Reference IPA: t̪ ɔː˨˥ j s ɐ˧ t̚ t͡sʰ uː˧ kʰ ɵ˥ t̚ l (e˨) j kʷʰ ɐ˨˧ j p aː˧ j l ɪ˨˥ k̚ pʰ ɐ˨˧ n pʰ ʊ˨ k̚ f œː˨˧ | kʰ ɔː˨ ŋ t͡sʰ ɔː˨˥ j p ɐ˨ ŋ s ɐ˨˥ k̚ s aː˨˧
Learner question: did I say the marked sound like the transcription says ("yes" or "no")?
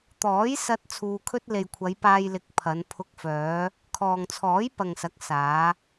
yes